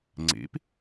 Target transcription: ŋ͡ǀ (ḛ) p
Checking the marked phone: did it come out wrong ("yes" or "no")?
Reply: no